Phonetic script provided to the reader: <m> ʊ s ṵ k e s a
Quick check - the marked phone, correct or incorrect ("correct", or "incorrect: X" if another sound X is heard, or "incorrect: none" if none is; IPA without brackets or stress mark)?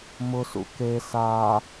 correct